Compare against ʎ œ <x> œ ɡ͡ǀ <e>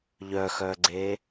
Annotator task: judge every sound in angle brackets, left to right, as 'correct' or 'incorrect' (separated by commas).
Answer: correct, correct